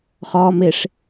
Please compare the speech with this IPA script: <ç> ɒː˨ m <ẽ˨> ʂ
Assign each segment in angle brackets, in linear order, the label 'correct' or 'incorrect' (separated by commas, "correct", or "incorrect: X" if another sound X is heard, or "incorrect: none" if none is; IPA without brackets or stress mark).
incorrect: χ, incorrect: e˨